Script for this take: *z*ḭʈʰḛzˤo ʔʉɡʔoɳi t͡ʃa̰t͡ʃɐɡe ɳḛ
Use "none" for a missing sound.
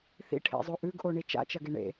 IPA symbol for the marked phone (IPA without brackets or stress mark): θ